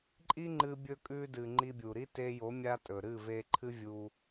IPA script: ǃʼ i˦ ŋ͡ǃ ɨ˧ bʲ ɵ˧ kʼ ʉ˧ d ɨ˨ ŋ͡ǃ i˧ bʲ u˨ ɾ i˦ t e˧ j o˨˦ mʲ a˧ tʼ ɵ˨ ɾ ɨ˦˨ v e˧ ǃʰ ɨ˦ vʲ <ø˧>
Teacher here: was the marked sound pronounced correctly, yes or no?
no